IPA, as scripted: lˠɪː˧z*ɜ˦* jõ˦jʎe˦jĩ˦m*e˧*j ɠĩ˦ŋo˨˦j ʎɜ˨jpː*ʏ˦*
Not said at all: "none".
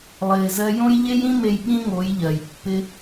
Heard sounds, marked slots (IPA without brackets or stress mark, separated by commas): ɜ˦, e˧, ɪ˦